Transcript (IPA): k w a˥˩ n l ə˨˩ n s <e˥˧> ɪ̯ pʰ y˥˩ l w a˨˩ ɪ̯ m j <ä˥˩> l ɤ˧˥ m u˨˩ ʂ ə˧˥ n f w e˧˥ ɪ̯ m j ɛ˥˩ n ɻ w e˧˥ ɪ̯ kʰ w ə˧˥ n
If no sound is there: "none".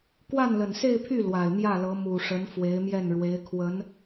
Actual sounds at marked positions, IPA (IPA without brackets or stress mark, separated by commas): e˥˧, ä˥˩